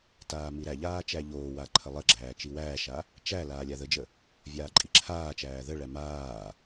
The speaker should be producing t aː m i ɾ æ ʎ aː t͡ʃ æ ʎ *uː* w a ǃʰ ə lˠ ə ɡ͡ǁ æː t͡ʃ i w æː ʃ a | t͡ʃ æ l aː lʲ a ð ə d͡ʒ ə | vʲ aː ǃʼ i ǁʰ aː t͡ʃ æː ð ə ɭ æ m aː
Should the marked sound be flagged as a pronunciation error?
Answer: yes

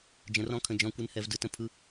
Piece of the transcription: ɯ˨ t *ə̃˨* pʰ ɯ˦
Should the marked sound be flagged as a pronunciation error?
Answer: yes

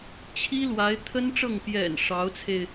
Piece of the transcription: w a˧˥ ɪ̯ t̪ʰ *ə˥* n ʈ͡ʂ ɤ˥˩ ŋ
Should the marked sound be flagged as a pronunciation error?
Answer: no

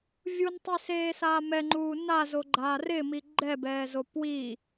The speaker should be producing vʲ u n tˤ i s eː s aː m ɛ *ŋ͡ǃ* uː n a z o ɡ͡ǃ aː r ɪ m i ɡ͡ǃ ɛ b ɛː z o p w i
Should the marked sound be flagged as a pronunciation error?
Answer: no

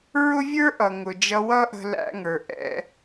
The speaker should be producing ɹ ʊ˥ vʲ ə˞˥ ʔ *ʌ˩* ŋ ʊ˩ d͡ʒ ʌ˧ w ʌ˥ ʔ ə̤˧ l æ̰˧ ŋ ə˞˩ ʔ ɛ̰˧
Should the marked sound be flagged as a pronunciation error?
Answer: no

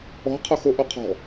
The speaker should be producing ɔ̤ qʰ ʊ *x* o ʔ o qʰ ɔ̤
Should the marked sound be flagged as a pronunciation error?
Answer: no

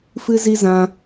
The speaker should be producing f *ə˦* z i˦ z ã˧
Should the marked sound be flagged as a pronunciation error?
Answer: yes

